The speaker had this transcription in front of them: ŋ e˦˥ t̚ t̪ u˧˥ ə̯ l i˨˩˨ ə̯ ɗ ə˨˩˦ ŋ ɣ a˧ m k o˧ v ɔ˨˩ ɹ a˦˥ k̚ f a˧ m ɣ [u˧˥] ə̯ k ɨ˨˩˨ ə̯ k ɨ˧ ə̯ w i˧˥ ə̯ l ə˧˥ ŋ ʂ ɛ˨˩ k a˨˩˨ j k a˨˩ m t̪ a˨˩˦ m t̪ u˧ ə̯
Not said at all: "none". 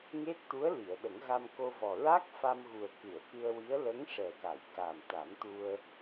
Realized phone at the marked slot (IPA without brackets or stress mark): u˨˩